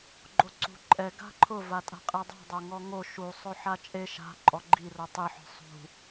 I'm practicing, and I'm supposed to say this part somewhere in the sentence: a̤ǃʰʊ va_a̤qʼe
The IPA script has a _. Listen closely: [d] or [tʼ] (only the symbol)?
tʼ